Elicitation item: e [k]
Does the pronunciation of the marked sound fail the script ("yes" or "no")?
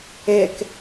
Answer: no